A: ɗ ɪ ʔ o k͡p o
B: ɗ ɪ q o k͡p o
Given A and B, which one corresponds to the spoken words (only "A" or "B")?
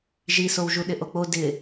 A